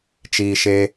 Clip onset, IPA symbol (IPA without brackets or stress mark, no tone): t͡ʃ